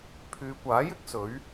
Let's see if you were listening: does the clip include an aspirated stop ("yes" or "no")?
yes